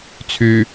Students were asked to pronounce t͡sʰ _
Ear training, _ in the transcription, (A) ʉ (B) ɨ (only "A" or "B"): A